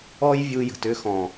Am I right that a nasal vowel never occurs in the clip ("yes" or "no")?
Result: no